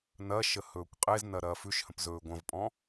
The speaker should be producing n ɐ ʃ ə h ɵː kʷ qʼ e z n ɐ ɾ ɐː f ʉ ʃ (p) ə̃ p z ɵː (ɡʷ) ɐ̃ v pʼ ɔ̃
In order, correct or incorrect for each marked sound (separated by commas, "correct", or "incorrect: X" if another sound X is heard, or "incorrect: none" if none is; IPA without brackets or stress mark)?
incorrect: h, correct